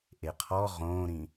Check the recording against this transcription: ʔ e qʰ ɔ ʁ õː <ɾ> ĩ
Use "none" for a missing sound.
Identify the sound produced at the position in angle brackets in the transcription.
ɾ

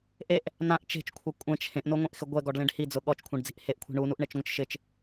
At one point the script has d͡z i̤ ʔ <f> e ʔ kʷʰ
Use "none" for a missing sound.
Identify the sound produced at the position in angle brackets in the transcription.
h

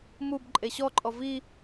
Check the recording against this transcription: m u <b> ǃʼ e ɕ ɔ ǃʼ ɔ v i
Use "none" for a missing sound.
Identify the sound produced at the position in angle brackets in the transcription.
b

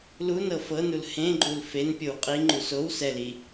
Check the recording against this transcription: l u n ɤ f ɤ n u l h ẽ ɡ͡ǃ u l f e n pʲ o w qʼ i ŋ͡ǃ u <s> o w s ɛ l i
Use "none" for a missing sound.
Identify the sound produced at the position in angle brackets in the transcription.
s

